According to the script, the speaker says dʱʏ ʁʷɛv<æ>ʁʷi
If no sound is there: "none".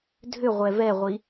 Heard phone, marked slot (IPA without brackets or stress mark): ɛ